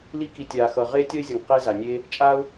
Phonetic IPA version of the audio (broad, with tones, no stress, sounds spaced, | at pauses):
l i˧ k i˨ tʲ aː˨ x ʌ˨ ʁ eː˦ tʲ ʌ˦ ɪ̯ zʲ ʌ˨ ŋ q e˧ z a˨ nʲ eː˧ | t͡ʃʼ aː˦ ʊ̯